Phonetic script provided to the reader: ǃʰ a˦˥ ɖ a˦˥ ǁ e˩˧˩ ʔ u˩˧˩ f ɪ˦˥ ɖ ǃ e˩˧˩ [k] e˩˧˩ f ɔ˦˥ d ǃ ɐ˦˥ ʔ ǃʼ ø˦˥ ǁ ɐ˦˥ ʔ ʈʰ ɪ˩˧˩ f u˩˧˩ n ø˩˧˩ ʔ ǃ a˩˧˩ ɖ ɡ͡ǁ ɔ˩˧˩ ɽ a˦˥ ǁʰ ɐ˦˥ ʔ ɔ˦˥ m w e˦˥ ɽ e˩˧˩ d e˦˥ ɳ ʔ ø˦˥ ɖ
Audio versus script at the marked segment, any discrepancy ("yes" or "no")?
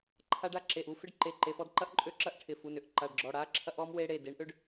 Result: yes